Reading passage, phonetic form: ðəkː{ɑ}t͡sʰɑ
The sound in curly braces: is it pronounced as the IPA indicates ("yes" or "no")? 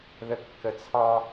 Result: no